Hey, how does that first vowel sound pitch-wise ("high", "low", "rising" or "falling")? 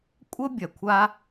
high